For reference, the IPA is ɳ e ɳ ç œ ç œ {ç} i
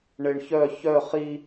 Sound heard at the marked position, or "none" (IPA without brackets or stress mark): χ